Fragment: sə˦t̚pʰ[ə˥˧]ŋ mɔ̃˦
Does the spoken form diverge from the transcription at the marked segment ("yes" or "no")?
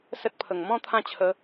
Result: yes